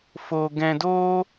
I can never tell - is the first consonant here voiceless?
yes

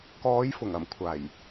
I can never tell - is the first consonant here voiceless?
yes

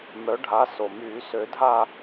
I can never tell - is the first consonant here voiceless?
no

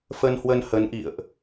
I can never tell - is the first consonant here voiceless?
yes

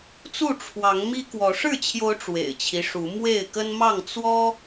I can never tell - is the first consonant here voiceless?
yes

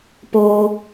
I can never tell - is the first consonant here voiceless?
yes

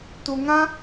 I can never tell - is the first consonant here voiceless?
yes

